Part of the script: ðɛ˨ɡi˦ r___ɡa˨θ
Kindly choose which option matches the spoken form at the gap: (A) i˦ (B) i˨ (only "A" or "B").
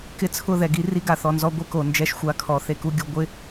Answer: A